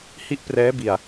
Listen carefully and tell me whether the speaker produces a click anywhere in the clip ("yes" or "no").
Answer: no